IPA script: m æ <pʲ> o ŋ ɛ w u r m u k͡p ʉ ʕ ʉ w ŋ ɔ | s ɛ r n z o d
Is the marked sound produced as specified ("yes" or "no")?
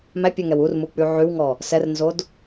yes